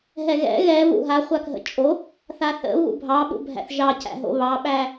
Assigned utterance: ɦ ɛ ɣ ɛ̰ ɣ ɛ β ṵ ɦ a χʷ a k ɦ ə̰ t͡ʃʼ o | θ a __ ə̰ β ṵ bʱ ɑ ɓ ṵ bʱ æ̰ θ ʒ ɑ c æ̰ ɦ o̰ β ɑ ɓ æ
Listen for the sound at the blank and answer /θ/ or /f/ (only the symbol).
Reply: θ